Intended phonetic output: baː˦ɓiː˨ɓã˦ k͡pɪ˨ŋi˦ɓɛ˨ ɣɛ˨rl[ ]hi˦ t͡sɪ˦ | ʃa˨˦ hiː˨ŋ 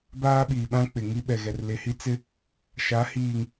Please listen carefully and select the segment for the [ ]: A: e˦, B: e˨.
B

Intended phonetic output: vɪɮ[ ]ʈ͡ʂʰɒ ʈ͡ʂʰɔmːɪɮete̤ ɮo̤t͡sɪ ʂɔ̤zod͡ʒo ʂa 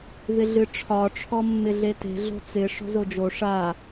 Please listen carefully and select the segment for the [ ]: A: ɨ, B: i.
A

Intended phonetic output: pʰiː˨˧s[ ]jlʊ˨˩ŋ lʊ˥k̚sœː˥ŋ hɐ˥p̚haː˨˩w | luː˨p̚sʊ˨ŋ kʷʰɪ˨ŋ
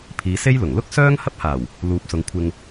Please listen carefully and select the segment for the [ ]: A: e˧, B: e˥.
B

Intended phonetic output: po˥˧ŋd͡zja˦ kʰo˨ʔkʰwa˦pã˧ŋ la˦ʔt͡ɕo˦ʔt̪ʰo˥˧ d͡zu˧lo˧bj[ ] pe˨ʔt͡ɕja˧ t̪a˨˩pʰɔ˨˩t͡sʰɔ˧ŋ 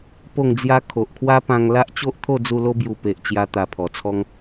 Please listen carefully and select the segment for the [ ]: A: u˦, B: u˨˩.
B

